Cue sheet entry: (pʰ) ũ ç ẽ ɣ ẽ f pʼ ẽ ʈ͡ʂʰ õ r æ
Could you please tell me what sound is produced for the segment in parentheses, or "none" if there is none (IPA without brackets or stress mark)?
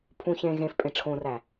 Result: pʰ